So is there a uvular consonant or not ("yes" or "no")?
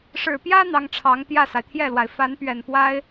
no